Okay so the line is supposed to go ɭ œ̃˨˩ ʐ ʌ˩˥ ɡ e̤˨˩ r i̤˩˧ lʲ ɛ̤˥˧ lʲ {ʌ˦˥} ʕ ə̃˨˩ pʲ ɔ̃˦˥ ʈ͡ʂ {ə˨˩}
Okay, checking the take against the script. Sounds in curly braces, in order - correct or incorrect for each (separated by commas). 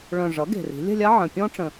incorrect, incorrect